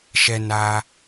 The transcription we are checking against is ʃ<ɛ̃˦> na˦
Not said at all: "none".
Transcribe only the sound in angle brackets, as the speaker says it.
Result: ɛ˦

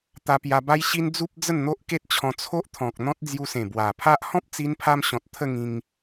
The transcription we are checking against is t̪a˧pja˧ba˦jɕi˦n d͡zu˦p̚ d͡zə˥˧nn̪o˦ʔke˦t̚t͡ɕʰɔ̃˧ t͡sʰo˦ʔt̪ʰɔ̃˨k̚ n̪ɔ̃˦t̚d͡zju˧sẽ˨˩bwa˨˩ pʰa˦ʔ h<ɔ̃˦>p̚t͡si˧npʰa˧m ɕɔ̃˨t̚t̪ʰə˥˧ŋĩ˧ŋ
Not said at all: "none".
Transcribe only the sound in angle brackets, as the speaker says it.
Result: ɔ̃˦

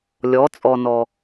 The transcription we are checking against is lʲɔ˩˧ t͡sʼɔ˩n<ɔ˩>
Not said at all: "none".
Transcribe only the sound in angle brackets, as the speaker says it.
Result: ɔ˩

